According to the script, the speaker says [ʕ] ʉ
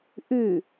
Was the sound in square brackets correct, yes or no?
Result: no